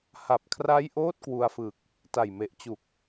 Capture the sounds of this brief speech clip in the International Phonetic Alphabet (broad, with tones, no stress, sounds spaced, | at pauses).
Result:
h a˨˩ p̚ kʰ r a˦˥ j ʔ oː˦˥ t̚ k w u˧ a̯ f ɯ˨˩ k̚ | t a˨˩ j m e˨˩ ʔ t͡ɕ u˨˩ k̚